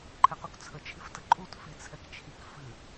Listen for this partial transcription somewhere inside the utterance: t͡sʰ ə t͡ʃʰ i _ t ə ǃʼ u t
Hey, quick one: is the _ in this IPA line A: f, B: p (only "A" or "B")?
A